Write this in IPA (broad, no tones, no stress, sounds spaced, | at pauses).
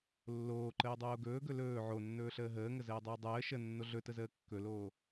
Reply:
lː oː ǃ əː dˤ oː ɡ ɵː ɡ ɵ l ɵː ʕ o nː ɵː ɬ əː ɦ əː ŋ ə z əː dˤ əː dˤ əː ʃ ə nː o ɮ ɵ t ə z əː kː ɵ l oː